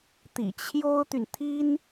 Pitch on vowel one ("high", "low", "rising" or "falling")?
low